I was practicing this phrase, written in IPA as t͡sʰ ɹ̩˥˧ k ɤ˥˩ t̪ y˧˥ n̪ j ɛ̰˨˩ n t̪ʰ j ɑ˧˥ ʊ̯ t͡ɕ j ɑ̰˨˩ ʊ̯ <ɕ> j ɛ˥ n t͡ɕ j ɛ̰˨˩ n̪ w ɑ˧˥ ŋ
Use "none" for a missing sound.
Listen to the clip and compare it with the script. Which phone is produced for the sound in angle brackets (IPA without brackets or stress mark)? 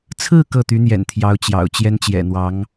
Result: t͡ɕ